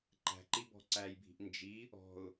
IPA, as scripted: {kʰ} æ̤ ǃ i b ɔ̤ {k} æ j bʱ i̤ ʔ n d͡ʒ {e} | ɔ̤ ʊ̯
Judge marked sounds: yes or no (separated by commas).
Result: no, no, no